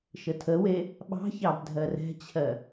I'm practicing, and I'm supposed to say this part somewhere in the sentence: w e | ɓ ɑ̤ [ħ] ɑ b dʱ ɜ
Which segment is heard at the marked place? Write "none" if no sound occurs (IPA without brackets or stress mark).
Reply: ç